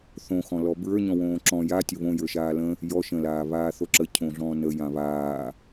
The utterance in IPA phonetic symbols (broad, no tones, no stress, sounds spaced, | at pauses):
θ õ x ɔ̃ l ɔ b ɹ ə˞ ɲ ɔ̃ w õː ǁ ɔ̃ j a tʲ ə β õ j ə˞ ʃ aː l ə̃ | j ɔ ʃ ə̃ l aː β aː θ o ǁ ə cʰ õ ɮ ɔ̃ː n ə j ã β aː